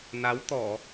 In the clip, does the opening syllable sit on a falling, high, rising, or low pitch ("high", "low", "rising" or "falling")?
rising